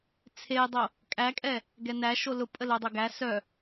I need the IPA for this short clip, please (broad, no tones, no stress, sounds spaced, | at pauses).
t͡sʰ e dˤ o | kʼ æ kʼ ɛ | ɡ ɛ n æ ʃ o l ʊ pʼ ə l o dˤ o ɡ æ s œ